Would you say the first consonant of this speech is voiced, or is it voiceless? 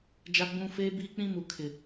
voiced